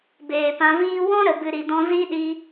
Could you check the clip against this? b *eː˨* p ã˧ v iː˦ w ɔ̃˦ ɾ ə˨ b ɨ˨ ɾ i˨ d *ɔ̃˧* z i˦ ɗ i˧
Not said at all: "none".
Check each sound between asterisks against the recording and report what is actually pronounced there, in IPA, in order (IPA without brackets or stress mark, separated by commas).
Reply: eː˨, ɔ̃˧